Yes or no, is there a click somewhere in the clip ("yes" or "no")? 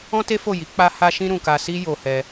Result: no